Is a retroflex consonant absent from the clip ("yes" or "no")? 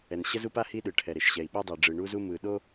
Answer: no